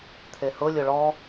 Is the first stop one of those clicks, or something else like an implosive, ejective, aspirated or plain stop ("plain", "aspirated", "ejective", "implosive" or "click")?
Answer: aspirated